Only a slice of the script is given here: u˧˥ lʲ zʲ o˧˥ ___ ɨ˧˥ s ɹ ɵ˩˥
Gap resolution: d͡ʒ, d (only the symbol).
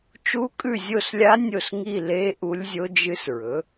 d͡ʒ